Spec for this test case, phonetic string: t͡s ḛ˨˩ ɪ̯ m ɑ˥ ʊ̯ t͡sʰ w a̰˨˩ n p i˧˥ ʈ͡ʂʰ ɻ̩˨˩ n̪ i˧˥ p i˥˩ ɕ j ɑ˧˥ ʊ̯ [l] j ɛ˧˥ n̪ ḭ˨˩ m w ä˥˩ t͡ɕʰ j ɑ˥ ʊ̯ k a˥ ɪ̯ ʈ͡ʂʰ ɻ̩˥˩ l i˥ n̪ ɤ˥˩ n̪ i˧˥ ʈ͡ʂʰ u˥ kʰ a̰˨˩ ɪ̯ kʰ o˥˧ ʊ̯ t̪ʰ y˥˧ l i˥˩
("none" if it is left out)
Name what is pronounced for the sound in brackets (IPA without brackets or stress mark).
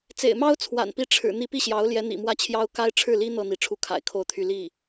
l